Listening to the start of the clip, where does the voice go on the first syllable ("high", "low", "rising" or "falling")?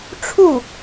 falling